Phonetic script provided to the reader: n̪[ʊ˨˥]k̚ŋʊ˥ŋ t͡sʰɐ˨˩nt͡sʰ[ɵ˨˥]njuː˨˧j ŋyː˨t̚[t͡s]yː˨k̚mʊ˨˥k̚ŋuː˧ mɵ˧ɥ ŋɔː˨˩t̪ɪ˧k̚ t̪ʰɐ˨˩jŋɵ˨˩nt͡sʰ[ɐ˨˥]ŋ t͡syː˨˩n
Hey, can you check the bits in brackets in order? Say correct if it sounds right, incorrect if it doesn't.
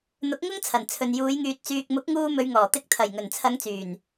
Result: correct, incorrect, correct, incorrect

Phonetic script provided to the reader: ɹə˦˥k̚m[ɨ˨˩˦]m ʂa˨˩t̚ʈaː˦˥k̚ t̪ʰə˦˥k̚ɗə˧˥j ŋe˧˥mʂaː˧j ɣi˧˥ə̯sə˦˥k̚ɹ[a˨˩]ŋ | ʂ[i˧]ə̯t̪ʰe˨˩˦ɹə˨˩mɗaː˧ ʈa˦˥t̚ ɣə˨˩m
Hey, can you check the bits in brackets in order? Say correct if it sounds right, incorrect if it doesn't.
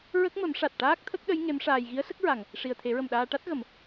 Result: incorrect, correct, incorrect

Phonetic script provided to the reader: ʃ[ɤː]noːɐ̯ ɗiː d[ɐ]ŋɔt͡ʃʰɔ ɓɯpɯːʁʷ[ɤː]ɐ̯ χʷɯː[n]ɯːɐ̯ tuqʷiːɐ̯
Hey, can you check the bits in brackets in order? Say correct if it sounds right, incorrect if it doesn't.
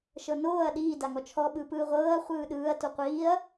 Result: incorrect, incorrect, correct, incorrect

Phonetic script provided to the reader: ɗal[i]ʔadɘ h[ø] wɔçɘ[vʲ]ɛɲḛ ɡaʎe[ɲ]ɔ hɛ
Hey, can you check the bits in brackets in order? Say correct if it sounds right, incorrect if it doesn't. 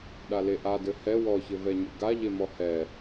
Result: incorrect, incorrect, incorrect, incorrect

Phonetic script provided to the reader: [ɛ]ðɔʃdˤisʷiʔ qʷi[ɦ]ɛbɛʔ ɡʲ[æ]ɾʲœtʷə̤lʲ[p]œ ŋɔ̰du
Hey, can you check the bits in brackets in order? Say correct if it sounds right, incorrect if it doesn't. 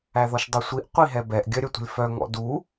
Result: incorrect, correct, incorrect, incorrect

